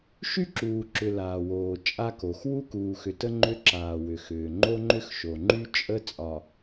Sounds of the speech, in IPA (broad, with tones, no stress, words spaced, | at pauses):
ʃy˦ǁuː˨ǁʏ˨ laː˨woː˨ t͡ʃʼa˦ko˨x wu˦kuː˨xʏ˨tə˦ ŋ͡ǃʏ˦ǁaː˨wʏ˨xʏː˨ ŋ͡ǃo˦ŋ͡ǃʏ˦xʃo˨ŋ͡ǃy˦ t͡ʃʼə˦ t͡sʼɒ˨